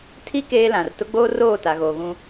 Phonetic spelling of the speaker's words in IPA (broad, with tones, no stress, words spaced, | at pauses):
tʰi˦ keː˦lã˨r tʊ˦ɡ͡boː˦ roː˦˨ ta˨ɣoː˨ɣũ˦